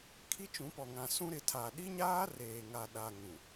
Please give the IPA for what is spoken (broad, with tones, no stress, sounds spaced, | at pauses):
kʰ i˦ t͡ʃ ũ˨˦ p ɔ˨ ŋ ã˨ s ũ˦ ɾ ɪ˨ tʰ aː˨ ɗ i˦ ɲ aː˦ r eː˨ ŋ a˨ ɗ a˨ ŋ ũ˨